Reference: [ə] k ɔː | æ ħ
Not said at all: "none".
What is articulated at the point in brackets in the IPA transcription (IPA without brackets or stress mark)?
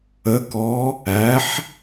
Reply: ə